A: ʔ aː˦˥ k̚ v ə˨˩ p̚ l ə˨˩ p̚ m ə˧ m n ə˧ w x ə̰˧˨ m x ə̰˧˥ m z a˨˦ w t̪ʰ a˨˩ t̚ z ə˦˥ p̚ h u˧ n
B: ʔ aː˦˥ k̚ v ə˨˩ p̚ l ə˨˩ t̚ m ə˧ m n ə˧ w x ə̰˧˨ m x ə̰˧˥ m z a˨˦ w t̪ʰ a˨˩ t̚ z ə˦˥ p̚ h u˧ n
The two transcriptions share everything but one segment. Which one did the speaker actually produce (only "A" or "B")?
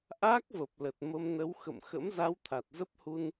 B